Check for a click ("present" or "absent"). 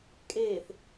absent